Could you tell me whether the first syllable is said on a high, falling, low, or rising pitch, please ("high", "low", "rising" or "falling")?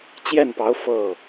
falling